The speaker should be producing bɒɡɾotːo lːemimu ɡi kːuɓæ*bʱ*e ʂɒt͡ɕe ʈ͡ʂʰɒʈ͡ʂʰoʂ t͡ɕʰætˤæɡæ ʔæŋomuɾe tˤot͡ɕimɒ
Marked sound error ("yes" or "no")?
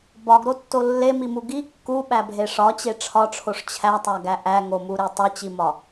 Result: no